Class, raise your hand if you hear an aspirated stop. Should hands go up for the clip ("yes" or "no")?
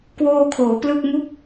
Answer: yes